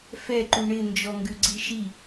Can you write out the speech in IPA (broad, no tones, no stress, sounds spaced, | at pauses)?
f ɛ ǃ u ɳ ɪ n d͡ʒ ɔ ŋ ɡ ʉ ɡ͡ǀ i ʃ i